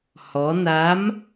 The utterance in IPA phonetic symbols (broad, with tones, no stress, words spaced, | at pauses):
hɔ˧˥ na˧˥m